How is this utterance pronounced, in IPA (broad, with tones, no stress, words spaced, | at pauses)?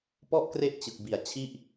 pɔ˥˩ʔ kre˥˩ʔt͡ɕɯ˨˩k̚ bi˨˩a̯t͡ɕʰi˥˩ʔ